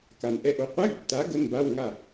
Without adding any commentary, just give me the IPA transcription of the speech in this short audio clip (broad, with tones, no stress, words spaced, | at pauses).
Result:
ka˨˩n ʔɛ˧ʔo˨˥ qʷɛ˧˥˧ɡtːa˨˥ ɡə˧˥˧nba˧˥˧w ŋa˥˨